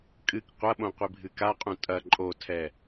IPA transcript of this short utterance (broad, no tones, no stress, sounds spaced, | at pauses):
kʼ ɨ k qʷ ɐ ɓ õ qʷ i bʱ ɨ k a qʼ ũ tʼ ɐ ǃʼ o tʰ ɛ